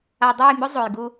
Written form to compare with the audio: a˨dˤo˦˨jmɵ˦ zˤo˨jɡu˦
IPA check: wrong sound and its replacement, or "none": none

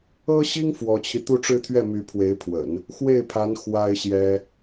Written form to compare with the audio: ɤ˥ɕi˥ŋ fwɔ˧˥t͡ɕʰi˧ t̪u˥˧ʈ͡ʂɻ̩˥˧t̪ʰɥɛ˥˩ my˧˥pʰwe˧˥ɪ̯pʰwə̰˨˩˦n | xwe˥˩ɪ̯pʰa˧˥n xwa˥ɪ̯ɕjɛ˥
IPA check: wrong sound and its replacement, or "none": none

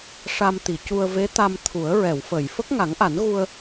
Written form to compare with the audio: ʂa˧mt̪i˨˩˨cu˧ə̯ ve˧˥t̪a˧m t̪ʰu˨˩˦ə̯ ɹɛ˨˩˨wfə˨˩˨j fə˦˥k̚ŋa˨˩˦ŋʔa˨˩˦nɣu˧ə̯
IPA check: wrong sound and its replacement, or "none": none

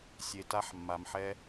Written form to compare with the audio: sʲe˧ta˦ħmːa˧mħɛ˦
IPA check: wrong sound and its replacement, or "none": none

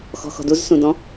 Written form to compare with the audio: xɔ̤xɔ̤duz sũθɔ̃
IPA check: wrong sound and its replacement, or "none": θ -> d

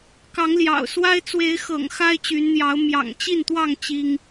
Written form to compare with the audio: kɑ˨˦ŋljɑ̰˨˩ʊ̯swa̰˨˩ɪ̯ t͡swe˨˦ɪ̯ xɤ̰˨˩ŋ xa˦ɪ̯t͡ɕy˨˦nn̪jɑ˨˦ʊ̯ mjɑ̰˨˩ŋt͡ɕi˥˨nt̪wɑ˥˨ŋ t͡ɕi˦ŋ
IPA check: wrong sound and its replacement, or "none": a̰˨˩ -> a˦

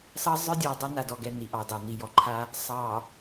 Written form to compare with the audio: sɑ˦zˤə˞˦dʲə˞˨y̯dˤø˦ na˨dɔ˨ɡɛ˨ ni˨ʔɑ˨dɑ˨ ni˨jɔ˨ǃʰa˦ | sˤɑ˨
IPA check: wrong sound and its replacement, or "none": none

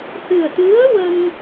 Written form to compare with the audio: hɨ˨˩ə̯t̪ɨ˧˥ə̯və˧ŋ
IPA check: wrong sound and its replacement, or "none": v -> w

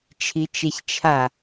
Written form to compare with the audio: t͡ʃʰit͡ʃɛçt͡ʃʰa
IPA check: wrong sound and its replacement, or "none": none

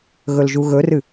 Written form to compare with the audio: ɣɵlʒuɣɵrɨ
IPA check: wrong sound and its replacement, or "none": none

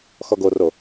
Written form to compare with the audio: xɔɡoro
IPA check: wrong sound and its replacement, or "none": none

